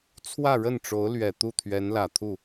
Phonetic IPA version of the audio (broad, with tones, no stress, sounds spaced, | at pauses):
t͡sʰ w ä˥˧ ɻ ə˥˩ n ʈ͡ʂ o˧˥ ʊ̯ l ɥ ɛ˨˩ t̪ u˥˩ t̪ʰ ɥ ɛ˧˥ n l ä˨˩ t̪ʰ u˥˩